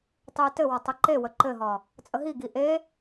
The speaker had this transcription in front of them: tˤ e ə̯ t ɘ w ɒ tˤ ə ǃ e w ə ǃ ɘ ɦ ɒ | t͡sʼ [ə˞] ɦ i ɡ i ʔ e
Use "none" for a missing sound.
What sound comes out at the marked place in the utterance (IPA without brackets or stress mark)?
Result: ə